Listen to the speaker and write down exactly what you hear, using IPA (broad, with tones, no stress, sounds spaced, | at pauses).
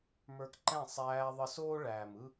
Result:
m ə˞˧ k ǃ ɛ̃˦˨ sˤ æː˧ ðˤ ə˧ s oː˦ ɭ æː˨ m ɯ˦